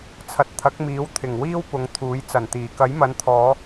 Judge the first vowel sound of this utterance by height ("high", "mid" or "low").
low